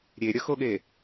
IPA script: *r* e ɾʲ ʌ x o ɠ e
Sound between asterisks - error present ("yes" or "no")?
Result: yes